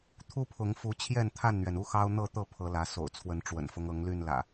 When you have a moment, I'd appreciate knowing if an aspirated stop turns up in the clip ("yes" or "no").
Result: yes